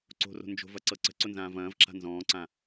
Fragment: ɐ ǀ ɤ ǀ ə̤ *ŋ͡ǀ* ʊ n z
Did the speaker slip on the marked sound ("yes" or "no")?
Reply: yes